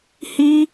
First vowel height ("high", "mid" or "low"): high